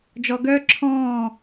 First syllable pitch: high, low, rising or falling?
low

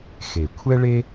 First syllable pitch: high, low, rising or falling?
low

